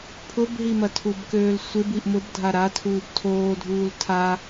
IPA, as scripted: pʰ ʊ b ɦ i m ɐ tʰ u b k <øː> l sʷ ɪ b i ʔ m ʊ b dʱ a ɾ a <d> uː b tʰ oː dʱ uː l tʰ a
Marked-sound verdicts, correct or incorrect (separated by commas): correct, incorrect